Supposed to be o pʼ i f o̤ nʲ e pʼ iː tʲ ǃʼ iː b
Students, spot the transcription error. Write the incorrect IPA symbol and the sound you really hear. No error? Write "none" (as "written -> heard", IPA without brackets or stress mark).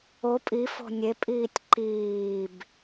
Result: ǃʼ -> ǃ